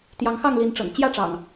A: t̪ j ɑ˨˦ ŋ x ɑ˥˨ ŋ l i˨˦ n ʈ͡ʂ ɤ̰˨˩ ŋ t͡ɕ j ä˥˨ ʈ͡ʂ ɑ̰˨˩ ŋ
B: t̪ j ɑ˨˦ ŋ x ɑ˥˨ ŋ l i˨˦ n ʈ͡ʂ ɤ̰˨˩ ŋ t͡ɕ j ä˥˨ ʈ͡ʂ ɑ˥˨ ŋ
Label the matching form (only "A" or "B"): A